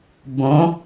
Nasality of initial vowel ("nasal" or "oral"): nasal